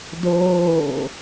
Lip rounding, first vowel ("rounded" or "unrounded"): rounded